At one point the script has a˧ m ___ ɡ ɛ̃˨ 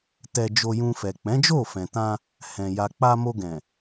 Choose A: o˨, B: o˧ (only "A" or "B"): B